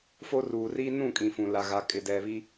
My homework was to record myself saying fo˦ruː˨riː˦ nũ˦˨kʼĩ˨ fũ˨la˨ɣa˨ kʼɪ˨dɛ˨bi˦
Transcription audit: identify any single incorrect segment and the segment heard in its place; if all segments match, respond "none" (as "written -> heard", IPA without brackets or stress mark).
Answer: b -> β